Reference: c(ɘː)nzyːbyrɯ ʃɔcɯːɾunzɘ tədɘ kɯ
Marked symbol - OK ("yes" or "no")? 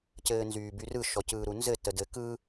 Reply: yes